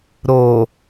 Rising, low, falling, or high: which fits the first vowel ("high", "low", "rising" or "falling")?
low